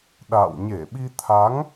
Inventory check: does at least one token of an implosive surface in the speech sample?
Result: yes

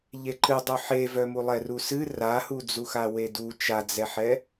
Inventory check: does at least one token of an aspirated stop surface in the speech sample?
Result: no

